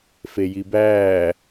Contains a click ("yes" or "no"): no